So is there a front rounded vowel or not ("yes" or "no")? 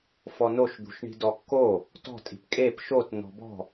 no